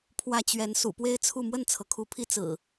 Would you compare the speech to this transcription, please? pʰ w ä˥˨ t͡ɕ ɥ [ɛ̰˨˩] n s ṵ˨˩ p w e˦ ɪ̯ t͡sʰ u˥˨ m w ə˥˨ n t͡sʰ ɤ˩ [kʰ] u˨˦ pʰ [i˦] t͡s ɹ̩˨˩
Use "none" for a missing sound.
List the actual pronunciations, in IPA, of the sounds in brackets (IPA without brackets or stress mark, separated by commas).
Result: ɛ˨˦, kʰ, i˦